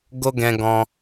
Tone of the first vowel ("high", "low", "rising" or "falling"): high